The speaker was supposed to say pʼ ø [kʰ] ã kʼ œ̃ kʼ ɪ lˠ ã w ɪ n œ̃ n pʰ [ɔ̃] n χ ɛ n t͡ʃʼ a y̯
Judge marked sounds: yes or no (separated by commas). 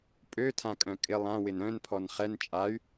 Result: no, no